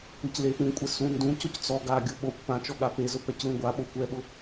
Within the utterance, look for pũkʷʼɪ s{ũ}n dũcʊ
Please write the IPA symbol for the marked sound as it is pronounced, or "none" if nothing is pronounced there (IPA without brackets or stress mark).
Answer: ũ